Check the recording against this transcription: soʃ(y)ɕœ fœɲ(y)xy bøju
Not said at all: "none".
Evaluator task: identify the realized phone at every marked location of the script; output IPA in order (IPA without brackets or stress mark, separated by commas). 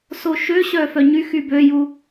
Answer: ø, y